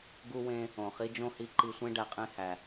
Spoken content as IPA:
ɡ u˧ w ẽ˧ | õ˩ χ i˥ d͡ʒ õ˥ h i˧ ǃ i˧ sʷ ẽ˥ ɖ æ˧ qʼ ẽ˥ h æ˩

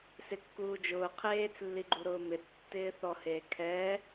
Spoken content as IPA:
s ɪ kː uː d͡ʒ ʊː qʰ eː t͡s lː i ɡ͡ǃ u ɾ ʊː m ɪ tː ɪː θ ɔ h eː kʰ ɛ

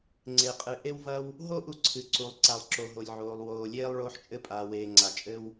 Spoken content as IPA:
ŋ͡ǀ e˩ qʼ ɨ˩ ʔ e˧ w v ɐ˧ w | ɦ o˥ ʔ u˧ ǀʰ ɨ˩ ǀ u˩ lˠ ǀ a˩ lˠ ǁ o˩ ɦ o˩ lʲ ʕ oː˩ lˠ w oː˩ lʲ eː˧ lˠ ɭ oː˧ ħ t͡ʃʼ ɘ˧ pʼ aː˩ w eː˩ ŋ͡ǀ a˩ t͡ʃʼ ɘ˧ w

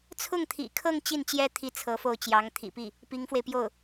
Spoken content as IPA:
t͡sʰ ʊ˥˩ ŋ t̪ʰ ḭ˨˩ kʰ ɤ˥˧ ŋ t͡ɕ i˥˩ n t͡ɕ j ɛ˥ t̪ʰ i˥˩ t͡sʰ ɤ˧˥ f o˥˩ ʊ̯ t͡ɕ j ɑ˧˥ ŋ t̪ʰ ḭ˨˩ p i˥˩ | p i˧˥ ŋ f w e˧ ɪ̯ p j o˥˩ ʊ̯

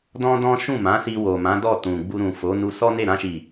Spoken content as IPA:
d ɔ̃˦ d ɔ̃˦ ʃ ũ˦˨ m ã˨˦ s i˧ w o˨ m ã˨˦ d ɔ˦˨ t ũ˨ ɡ͡b u˧ ɾ ũ˨ f o˨˦ n u˧ s ɔ˦ n e˦˨ ɾ ã˧ ʃ i˨

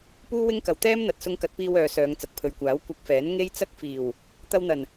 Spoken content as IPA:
p uː˥ w ɪ˥ ŋ k ɐ˨˩ w t̪ ɛː˥ m n̪ ɐ˨ t̚ s ʊ˧ ŋ k ɐ˨˥ t̚ p iː˧ w œː˨ s œː˨˧ ŋ t͡s ɐ˨ k̚ pʰ ɵ˨ ɥ kʷ aː˨˥ w kʷ ɐ˧ k̚ f ɛː˨˥ n ŋ e˥ j t͡s ɐ˥ k̚ f iː˨˩ w | t̪ ɐ˧ w n̪ ɐ˨˩ n

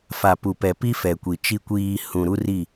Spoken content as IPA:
f a˨ p u˨ p ɛ˨ p i˦ f ɛ˨ kʷ i˨ t͡ʃ i˨ kʷ iː˨ h ũ˨ ɾ u˦ r i˦˨

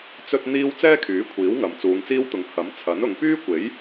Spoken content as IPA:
t͡s ɵ˥ t̚ n̪ iː˥ w t͡s ɛː˥ kʰ yː˨˥ kʷʰ iː˨˥ w ŋ ɐ˨ m t͡s uː˨˧ ŋ t͡s iː˥ w t̪ ʊ˨˧ ŋ h ɐ˨˥ m t͡sʰ ɐ˨˥ n ʊ˨˧ ŋ p yː˥ kʷ e˨˥ j

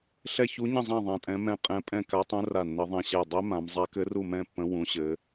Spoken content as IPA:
ɬ ɛ˥˧ ç u˦˥ ɲ ə̃˥˧ zˤ ã˥˧ ðˤ ã˦˥ tʼ ɛ̃˦˥ m ɛ̃˥˧ qʼ ɛ̃˦˥ pʼ ɛ̃˥˧ k a˦˥ tˤ ũ˦˥ r a˥˧ nː ə˦˥ ðˤ ɛ̃˥˧ ɕ ɛ˥˧ dˤ ɛ˦˥ m ã˦˥ m zˤ a˦˥ k ɘ˦˥ r u˥˧ m ɛ̃˥˧ pː ə̃˦˥ w ũ˦˥ ɕ ɘ˦˥

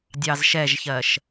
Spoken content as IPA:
dʲ ɑ z ʃ ɛ ʒ ç ɜ ʃ

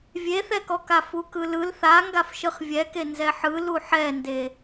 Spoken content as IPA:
vʲ e θ ɛ k ɔ k a f u k ɯ l ɯ l θ a ŋ ɡ a f ʃ ɯ χ vʲ ɛ k e n z ɛ ħ ɯ l u ħ ɛ n d e

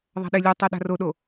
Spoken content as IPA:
ðˤ a̤ ɗ e lʲ u tˤ ɛ ɗ a̤ r o ɗ o

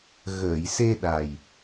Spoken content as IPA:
ɣ əː˨˩˨ j s e˧ ɗ a˨˩ j

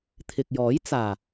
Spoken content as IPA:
t̪ʰ ɪ˨ k̚ j ɔː˨˥ j t͡s aː˨˩

